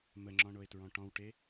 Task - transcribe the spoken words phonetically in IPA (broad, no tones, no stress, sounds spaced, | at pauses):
m ə ŋ͡ǁ ɔ̃ ɳ o e̯ t ɹ ɔ̃ ʈ ɔ̃ w ʈ e